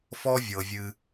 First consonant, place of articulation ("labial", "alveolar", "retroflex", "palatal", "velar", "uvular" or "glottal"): labial